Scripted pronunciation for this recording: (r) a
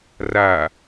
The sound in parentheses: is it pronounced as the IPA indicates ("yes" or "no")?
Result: yes